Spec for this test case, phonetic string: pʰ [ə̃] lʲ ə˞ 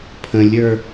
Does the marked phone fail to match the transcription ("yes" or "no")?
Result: no